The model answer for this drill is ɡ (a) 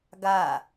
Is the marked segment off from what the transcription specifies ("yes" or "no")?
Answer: no